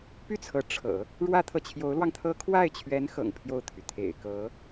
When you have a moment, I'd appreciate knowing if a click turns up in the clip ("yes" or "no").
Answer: no